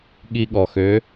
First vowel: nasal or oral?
oral